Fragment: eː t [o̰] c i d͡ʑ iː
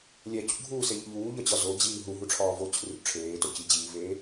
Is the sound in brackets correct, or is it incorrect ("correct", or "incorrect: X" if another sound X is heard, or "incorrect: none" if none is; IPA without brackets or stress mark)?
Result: incorrect: o